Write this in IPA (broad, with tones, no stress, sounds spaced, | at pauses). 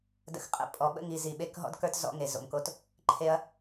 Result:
d ə̰˨ x qʼ ə̰˨ pʼ ɔ˨ ɓ ə̰˦ ŋ i˨ z i˨ ɓ e˦ k ɦ ɔ̰˦ d k ə˞˦ t z ɔ̰˦ ŋ e˨ z o̰˨ m k o˦ t | ǃʰ e˦ ɐ̯